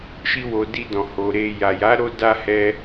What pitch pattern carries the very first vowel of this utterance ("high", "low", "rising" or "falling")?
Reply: high